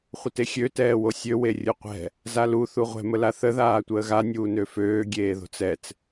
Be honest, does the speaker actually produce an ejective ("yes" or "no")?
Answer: no